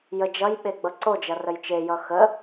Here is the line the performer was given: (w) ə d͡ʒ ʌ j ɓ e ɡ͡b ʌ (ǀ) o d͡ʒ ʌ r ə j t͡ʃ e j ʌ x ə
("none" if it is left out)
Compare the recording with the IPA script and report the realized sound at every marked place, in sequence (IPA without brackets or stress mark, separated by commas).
j, ǀ